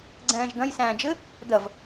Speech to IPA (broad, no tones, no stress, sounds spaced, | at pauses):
ɡ͡ǀ ɛ̃ː ʒ d̪ ɐ̃ j s æ̃ː d͡ʒ ɘ | d̪ ɐ v